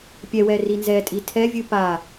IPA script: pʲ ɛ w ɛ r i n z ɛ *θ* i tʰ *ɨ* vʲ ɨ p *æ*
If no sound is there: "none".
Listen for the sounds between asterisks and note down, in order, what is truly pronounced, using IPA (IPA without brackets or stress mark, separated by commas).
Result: tʼ, ɛ, a